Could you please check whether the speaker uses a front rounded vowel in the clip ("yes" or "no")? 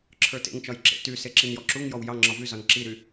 yes